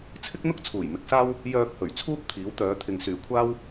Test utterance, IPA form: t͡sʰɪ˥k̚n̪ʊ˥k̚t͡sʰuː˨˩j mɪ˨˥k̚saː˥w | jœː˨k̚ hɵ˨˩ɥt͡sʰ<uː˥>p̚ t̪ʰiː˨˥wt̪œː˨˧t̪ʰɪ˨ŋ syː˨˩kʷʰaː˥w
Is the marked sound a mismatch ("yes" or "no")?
no